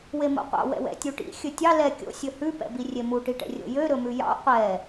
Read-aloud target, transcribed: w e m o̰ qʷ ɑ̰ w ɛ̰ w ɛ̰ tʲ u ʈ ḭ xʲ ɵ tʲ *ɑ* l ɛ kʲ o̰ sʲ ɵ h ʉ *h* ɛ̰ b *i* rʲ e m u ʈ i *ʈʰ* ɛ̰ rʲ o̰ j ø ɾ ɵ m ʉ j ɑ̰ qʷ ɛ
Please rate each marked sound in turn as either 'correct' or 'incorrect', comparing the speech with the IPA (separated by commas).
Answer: correct, incorrect, correct, incorrect